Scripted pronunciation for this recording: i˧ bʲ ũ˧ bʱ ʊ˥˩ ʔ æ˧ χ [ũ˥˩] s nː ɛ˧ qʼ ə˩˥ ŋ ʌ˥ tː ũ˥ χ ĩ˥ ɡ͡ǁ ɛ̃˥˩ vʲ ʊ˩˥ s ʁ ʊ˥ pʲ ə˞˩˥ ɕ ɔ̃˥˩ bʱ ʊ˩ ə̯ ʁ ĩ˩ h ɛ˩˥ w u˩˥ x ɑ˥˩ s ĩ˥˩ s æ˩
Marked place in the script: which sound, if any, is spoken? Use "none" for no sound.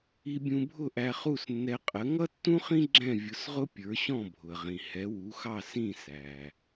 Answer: u˥˩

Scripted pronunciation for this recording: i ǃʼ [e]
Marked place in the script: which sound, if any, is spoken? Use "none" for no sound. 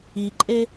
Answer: e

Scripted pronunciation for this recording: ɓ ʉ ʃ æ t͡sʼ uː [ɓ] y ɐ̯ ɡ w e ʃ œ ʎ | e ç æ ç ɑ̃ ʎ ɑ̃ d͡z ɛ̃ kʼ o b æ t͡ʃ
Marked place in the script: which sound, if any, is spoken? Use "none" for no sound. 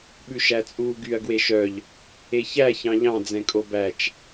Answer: ɡ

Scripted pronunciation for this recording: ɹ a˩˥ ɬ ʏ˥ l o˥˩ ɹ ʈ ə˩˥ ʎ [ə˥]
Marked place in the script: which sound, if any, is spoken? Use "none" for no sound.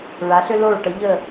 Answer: ə˥˩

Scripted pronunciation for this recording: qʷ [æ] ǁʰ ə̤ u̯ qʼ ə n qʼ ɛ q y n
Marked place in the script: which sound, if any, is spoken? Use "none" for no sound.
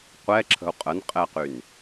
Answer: ɛ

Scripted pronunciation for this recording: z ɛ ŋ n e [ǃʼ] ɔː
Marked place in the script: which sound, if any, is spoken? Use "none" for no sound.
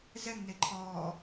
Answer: ǃʰ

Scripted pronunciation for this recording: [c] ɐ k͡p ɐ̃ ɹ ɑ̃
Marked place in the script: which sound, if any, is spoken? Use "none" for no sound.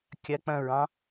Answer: kʲ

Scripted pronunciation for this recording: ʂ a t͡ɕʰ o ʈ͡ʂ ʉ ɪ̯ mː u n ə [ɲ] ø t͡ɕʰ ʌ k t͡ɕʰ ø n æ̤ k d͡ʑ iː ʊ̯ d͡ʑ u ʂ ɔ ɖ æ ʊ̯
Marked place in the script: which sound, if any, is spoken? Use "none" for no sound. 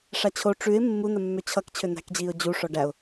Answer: mː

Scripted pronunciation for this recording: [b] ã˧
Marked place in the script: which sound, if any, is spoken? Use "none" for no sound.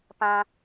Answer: p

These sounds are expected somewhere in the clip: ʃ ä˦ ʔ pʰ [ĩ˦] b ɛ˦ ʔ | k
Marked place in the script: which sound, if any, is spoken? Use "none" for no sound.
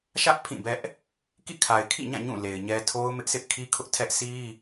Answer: ĩ˦˨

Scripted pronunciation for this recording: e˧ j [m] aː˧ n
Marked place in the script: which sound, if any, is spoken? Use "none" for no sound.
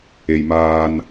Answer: m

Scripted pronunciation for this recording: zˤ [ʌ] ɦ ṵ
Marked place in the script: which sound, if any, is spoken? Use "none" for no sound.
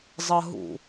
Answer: ʌ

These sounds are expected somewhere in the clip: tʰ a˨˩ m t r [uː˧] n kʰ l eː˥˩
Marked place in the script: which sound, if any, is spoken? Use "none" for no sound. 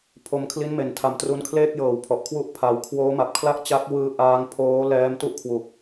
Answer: u˧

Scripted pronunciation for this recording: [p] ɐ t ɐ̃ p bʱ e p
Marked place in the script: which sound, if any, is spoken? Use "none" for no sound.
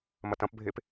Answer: m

